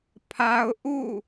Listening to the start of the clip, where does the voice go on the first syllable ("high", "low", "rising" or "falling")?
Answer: high